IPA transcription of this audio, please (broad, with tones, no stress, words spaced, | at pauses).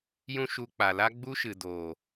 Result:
jũ˦ʃu˧ k͡pa˨ la˦ ɡ͡bu˦ʃɨ˨doː˨